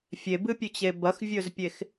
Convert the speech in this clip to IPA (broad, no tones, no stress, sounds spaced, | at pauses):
fʲ e b ɨ pʲ ʉ t͡ɕ e b ɐ x vʲ ɵ z pʲ e x